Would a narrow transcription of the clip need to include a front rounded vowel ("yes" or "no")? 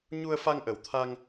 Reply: no